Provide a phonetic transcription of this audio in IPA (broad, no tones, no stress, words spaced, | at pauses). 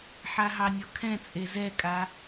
ħaɦɑnʲɔkʰɛ̃ t͡sʼezɛkʼa